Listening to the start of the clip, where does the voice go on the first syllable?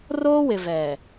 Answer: high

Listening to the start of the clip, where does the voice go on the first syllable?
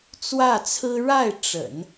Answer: falling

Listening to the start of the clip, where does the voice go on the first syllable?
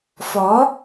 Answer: rising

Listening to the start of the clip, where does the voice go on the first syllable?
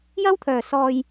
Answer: high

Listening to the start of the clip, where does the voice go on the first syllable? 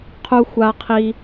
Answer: high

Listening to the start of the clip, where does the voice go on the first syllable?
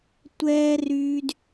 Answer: high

